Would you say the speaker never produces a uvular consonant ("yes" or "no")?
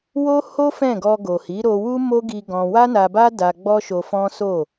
yes